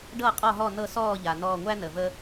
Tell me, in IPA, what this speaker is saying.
ɖ ɤ˥˨ qʼ ɔ˥˨ ɦ ɔ˥˨ n ɤ˥˨ s ɔː˥˨ ʎ a˩ n ɔː˧˩ ŋʷ æ˦ n ə˩ v ə˦

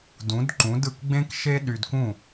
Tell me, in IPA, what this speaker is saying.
d ũ˩˥ d ǃ ũ˩˥ d ɯ˩ k ɡ͡b ẽ˥ k ʃ e˥ ɗ y˧ d k ũ˥˩

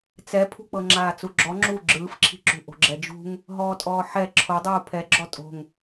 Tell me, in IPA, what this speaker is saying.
t͡s ɛ pʰ ṳ k͡p ɤ ŋ͡ǁ aː t͡s u ɡ͡ǁ ɔ ŋ͡ǁ u ɡ͡ǁ ɯː f ǁʰ i̤ ǁ ṳ ʔ o̤ ɡ͡ǁ ɛ d͡ʒ ṳ ŋ | ɦ ɔː tʼ ɔː ħ ɛ ǁʰ o dˤ uː pʰ ɛ ɡ͡ǁ ɔ tʼ o̤ ŋ

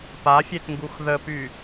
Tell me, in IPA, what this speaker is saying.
p a fʲ e t ŋ ɡ u x ð ə p y

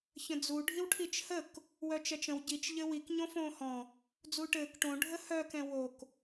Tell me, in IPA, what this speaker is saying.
ç ə̃ d͡z u ɖʱ i w ʈʰ i t͡ʃ h ə k | w œ t͡ʃ ɛ t͡ʃ ə̃ w ɟ i t͡ʃ ʎ ɘ w i k ɲ õ f õː h ɔ̃ | d͡z uː ʈ ɘː k ʈ õ ɖʱ ə h œ k ɛ̃ w o k

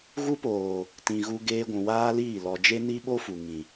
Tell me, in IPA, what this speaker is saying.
ɣ u˦ p oː˨ | t ĩ˨ ɣ u˧ ɡ eː˧ ɡʷ ũ˨ w aː˦ l iː˦˨ l ɔ˨ d͡ʒ e˦ n i˦ ɓ o˦ f u˨ ŋ ĩ˨

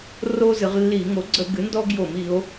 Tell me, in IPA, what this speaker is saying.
r o˦ z ɨ˩˧ ʁ lː i˧˩˧ ŋ o˩˥ ɡ͡ǀ ə˧˩˧ ɡ ɨ˩˥ n d ɔ˦ ɡ j o˧˩˧ m i˩˧ o̯

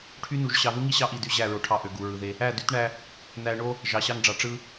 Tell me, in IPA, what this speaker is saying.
ʈʰ y˦ n u˨ ʒ ɕ ɑ˨ ð u˦ ŋ i˦ ɕ ɑ˦ ʔ i˨ d y˦ ʑ æ˦˨ ɹ o˨ ʈʰ ɑ˦˨ ʔ ø˨ ɡ u˨ ɹ ɯ˨ ð e˦ | æ˦˨ d y˦ t ɳ æ˦ | n æ˨ ɳ o˦ | ʒ ɑ˨ ɕ ɑ˦ ŋ ɖ͡ʐ ɑ˨ ʈ͡ʂ ɯ˦

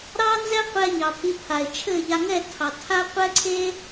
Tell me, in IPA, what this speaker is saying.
ɾ ɑ˦ n z ɛ˦ qʷ ɛ˧ ɲ ɑ˨ pʰ i˨˦ pʰ a˨ e̯ t͡ʃʰ ɘ˦˨ ʎ a˧ ŋ ɛ˦˨ tʰ ɑ˨ tʰ a˦ qʷ ɛ˦ ǀʰ e˦

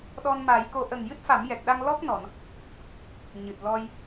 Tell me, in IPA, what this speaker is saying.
ɗ ɔ˧ n m a˨˩˦ j k o˧ ʔ ə˨˩ ŋ j ɨ˦˥ t̚ f a˨˩˦ m j ɛ˨˩ k̚ ɗ a˧ ŋ l ɔ˦˥ k̚ n ɔ˨˩˨ n | ɲ ɨ˨˩ t̚ l ɔ˧ j

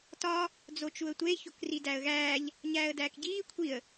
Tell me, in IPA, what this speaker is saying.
t ɒ | d͡z o t͡ʃ u ə̯ tʷ e ç o k r i d æ ə̯ ɣ æː ʎ | ɲ æː ə̯ d æː k ɟ iː kʷʰ i ə̯

